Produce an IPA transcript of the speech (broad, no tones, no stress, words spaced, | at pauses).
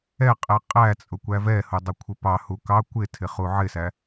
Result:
ɛqʼɛ qʼæt͡sʼʊ kʷævɛhʊ dˤʊkʷʰɪpɑhu kɑ kʷɪtʰɪ χuʕɪsæ